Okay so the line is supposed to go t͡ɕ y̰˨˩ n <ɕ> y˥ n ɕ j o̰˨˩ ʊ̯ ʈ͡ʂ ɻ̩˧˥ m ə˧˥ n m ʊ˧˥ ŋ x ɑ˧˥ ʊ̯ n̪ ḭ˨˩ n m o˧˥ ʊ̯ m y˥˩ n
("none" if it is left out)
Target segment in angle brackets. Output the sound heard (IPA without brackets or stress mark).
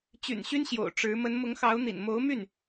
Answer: ɕ